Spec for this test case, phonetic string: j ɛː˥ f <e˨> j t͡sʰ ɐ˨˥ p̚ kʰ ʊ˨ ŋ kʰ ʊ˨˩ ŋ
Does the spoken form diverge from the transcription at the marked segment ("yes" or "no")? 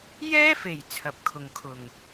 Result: yes